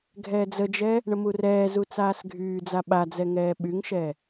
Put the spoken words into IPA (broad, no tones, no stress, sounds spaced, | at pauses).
ɡʱ ɛː d͡z ə d͡ʒ ɛ | ɳ ə m u r ɛː z u t͡s aː s ɡʱ yː d͡z a ɓ a d͡z ɛ ŋ ɛː ɓ y ŋ ʃ ɛ